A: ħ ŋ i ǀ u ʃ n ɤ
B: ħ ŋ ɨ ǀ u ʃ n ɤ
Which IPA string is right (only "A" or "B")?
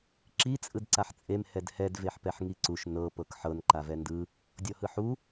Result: A